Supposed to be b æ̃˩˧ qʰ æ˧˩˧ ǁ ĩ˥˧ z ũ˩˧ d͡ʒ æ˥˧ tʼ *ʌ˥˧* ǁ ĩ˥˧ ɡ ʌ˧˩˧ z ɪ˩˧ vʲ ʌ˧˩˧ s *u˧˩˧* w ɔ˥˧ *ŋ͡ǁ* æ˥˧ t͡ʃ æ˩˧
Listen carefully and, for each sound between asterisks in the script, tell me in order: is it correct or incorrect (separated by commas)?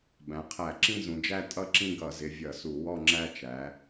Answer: correct, correct, correct